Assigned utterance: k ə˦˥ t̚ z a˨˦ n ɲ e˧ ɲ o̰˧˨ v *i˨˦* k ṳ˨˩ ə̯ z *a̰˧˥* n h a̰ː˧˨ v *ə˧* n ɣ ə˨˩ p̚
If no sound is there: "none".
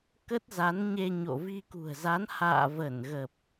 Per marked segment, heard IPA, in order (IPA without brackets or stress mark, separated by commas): i˧, a˨˦, ə˧˩